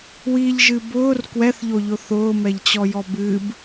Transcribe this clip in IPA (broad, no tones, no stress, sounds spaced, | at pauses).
w i ʎ ʒ ɨ b ʊː r k w ɛ θ ʎ o ʎ ʊ θ ʊː m ɛ ʎ t͡ɕ ɔ j ɔ b ɨ b